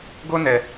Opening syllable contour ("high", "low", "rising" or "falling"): high